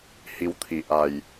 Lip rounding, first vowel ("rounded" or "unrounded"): unrounded